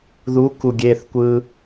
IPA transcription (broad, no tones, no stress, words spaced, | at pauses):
ðu kuɡʲeθkʷɯ